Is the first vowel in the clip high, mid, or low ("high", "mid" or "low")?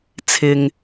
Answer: high